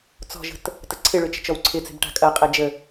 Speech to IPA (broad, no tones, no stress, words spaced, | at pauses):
t͡sɔ̤ʒə̤t | təǀʰɪɭʏ t͡ʃə̤t͡ʃɔwǀʰɪt͡se̤b ʈa̤kʼɐqʼɛ d͡ʒə